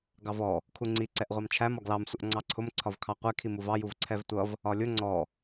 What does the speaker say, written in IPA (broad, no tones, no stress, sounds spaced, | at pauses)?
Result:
ɡ ɑ v ɔ | kʰ u ŋ͡ǀ i ǀ ɛ ʔ ʁʷ ɑ m t͡ʃʰ æ m ɒ ɡ l ɑ m sʷ ə ʔ ŋ͡ǀ ɑ ǀʰ ʊ m ǀʰ ɒ v kʰ ɑ qʷ ɛ kʰ i m u v ɑ j u v ǀʰ ɛ v tʷ ʌ v | ɒ lʲ ʊ ŋ͡ǀ ɔ